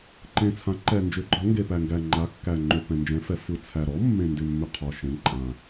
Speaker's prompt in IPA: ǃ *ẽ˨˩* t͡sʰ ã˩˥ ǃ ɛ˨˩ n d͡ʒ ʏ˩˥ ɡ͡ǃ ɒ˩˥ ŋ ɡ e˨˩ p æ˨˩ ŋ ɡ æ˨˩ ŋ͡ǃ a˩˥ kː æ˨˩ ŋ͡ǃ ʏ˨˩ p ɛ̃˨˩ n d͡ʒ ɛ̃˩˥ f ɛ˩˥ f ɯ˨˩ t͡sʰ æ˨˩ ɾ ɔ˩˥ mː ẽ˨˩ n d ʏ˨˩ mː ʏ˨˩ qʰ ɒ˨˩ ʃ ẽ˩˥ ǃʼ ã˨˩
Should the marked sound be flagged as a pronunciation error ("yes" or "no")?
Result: no